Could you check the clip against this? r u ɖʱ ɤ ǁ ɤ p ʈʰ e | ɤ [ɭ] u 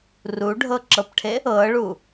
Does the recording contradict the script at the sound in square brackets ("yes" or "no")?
no